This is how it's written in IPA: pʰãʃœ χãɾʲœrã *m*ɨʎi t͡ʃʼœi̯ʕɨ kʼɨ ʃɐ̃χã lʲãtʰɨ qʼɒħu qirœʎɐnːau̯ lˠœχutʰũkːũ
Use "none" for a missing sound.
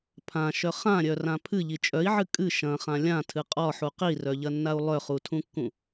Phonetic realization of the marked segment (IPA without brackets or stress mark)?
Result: pʰ